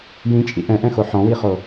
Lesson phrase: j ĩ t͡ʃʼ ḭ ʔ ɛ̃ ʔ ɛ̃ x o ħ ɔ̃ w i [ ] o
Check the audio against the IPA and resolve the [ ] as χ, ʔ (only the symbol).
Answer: χ